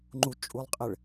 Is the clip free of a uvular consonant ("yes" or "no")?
no